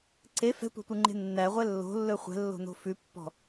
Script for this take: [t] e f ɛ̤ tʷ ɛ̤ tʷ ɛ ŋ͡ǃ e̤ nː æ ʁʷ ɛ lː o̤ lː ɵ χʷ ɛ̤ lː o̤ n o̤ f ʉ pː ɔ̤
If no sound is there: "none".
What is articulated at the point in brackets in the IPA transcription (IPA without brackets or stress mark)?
ǀ